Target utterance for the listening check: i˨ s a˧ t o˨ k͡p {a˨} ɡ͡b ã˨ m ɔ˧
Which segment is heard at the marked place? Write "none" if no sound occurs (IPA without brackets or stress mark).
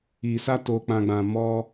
ã˨